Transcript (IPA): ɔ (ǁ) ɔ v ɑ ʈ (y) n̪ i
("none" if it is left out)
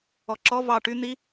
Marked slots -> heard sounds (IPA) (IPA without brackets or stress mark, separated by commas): ǁ, y